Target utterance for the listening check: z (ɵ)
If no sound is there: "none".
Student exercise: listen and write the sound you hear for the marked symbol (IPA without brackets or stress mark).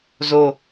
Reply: o